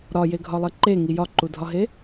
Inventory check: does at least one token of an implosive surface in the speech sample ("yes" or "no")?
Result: no